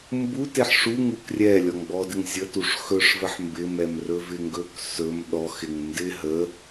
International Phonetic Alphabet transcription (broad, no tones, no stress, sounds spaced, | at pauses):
m b u t e ħ ʂ u ŋ u k rʲ ɛ lʲ ɔ ŋ ɡ͡b ɔ d ɪ ŋ zʲ ə t u ʂ x ɵ ʂ v ə ħ m b ɪ m ɛ m r ɵ v ɪ ŋ ɡ ɵ k s ɵ m ɗ ɔ x ɪ ŋ n d ɪ ɦ ə